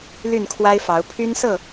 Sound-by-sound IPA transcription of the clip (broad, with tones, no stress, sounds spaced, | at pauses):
l y˥˨ n kʰ w a˦ ɪ̯ f ɑ˨˦ ʊ̯ pʰ y˦ n s ɤ˥˨